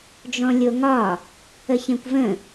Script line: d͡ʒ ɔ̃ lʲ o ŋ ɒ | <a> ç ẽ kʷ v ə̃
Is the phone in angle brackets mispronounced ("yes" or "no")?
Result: yes